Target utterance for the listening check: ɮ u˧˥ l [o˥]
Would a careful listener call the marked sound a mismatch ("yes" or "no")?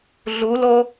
no